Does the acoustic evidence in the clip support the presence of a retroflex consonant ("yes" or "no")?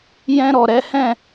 no